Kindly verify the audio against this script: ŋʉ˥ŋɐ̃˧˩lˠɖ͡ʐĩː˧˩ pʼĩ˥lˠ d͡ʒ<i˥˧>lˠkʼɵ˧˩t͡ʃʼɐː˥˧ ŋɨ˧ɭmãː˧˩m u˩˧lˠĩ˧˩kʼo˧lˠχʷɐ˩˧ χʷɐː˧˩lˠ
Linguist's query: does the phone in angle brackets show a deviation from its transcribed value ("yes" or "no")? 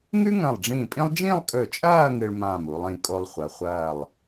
yes